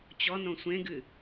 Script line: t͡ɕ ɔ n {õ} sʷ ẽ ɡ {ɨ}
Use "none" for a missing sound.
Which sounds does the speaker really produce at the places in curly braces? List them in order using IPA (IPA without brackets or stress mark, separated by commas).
õ, ɨ